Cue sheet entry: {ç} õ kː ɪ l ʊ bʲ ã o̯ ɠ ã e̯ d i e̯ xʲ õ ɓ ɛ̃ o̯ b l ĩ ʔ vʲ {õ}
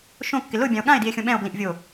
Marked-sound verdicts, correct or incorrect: incorrect: ʃ, incorrect: o

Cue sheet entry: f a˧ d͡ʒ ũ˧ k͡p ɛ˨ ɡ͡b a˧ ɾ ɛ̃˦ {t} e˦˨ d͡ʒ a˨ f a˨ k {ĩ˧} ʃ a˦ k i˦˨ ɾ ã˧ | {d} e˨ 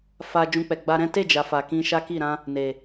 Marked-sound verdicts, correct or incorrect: correct, correct, incorrect: n

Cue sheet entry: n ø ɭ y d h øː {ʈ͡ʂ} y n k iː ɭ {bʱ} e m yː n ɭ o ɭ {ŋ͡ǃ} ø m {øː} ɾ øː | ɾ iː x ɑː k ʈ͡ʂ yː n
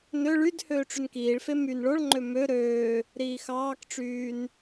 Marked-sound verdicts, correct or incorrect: correct, incorrect: f, correct, incorrect: ø

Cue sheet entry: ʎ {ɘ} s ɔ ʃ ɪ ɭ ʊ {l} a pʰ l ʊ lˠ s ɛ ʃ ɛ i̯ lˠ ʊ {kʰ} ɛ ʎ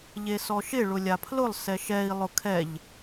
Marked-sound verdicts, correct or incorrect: incorrect: e, incorrect: lʲ, correct

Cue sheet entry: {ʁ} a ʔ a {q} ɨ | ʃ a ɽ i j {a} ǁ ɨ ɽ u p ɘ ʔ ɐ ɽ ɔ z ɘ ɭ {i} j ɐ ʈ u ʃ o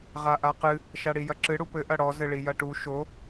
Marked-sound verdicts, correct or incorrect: correct, correct, incorrect: ɐ, correct

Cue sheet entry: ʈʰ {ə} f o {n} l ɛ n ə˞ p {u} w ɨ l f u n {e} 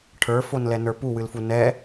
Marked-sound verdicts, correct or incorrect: incorrect: ə˞, correct, correct, incorrect: ɛ

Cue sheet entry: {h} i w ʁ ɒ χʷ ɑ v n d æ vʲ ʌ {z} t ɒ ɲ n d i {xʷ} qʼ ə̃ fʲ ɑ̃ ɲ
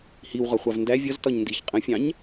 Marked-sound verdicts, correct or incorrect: correct, correct, incorrect: ç

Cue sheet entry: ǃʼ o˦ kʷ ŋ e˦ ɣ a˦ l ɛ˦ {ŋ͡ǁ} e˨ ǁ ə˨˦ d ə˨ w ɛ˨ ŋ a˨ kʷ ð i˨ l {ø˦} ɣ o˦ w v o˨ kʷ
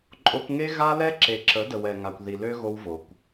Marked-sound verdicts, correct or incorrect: incorrect: ǁ, correct

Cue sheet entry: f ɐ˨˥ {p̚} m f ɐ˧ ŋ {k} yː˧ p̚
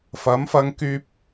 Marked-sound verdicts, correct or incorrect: incorrect: none, correct

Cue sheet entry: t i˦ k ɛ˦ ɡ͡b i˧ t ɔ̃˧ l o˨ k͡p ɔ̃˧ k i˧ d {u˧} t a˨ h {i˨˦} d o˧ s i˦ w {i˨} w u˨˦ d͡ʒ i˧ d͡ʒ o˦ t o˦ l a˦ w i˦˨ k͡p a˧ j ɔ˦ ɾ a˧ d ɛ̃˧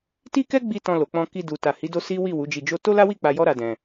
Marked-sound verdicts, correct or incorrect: incorrect: u˨, correct, incorrect: i˦˨

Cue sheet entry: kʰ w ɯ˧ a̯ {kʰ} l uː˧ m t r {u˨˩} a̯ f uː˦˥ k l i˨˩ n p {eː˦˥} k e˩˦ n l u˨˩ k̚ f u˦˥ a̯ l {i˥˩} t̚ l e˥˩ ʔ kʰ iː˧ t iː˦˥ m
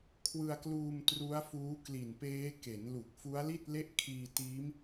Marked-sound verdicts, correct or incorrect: incorrect: k, incorrect: u˦˥, correct, correct

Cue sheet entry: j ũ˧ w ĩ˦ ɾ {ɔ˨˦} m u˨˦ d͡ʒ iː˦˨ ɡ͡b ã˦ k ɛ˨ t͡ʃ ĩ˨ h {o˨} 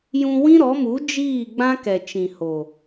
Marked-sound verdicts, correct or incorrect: correct, correct

